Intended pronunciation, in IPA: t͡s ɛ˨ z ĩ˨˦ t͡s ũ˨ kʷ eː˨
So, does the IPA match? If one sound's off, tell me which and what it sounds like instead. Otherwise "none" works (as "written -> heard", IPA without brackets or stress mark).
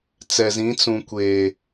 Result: none